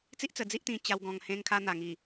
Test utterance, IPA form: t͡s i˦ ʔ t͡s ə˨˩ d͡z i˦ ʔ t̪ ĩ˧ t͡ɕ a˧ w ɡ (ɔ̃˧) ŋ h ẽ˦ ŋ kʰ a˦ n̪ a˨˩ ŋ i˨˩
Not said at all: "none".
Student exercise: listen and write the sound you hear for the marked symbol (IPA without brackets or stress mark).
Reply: ɔ̃˧